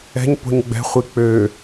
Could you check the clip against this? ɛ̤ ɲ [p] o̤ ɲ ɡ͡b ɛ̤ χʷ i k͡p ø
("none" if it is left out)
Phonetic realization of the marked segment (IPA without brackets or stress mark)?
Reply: p